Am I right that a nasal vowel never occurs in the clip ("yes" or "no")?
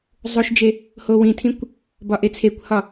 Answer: no